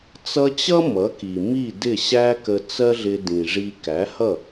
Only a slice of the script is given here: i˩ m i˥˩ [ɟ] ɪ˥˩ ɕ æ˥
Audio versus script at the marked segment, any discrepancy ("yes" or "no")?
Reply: yes